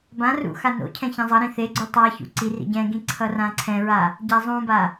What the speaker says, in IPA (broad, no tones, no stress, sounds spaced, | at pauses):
b ã r ṵ x a n o̰ cʰ ɛ̃ ç ã zˤ ʌ ɾ ĩ θ e ɡ͡ǀ u tˤ a ç ṵ ǀ i r ḭ ɟ ɛ̃ ɡ ĩ ǀʰ ʌ r ã ǀʰ ɛ̃ ɹ a | ɟ a zˤ ũ b a